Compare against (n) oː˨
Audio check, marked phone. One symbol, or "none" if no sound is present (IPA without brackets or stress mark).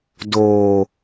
d